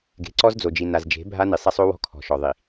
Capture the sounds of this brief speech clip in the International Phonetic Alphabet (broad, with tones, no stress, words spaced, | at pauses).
ɡe̤˨ǀɔ˦zd͡zo˨d͡ʒi˨ na˨zd͡ʒe̤˨˦ bʱa˦ni˨sˤa˦sˤo˦ wɔ̤˦kʰɔ̤˨ʃɔ˨ ðˤi˨